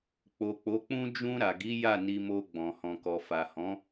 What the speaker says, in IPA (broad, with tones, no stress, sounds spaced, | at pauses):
k͡p o˨ k͡p o˨˦ k͡p ũ˦ d͡ʒ ũ˧ ɾ a˨ ɡ i˨˦ j a˦˨ n i˧ m o˧ ɡ͡b ɔ̃˨ h ɔ̃˨ k ɔ˨ f a˨ h ɔ̃˨˦